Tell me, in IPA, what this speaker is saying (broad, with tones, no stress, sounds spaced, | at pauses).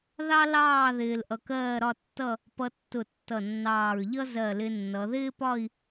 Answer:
ð ɑ˥ l ɑː˥˧ ð ɪː˧ l ʔ ʌ˧ k ɜː˥˧ ɾ ɒ˥˧ tː ʌ˥˧ | p ʌ˧ tː ʊ˧˩ tː ʌ˧˩ nː ɑː˧˩ ɹ ʎ ʌ˥ z ɜ˧˩ l ɪ˧ nː ʌ˩˧ ð ɪː˥ p ɒ˥˧ i̯